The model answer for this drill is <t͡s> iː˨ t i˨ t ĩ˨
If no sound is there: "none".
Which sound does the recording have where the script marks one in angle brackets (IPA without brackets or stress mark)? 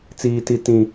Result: t͡s